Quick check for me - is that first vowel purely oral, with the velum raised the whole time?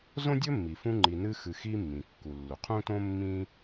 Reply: no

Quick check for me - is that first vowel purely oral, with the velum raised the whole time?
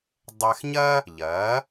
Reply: yes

